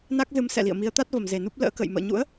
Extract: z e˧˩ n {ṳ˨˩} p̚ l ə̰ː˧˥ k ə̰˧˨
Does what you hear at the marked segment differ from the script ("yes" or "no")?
yes